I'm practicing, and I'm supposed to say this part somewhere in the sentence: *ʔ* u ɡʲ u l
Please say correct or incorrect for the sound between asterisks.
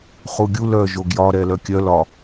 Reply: incorrect